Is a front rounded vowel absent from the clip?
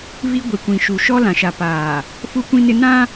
yes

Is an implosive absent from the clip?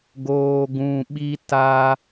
no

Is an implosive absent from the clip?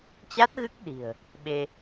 no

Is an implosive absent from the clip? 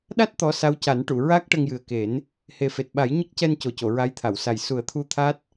no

